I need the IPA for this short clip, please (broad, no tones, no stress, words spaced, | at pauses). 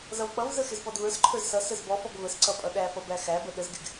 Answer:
zʌvk͡pʌvzə xɪzpɔdvə˞sǃʰə˞z sʌ səzbɔfɔɡ vəsǀʌ pʼʌɗæfʌ bæxæbə ɗəzɡɪɡ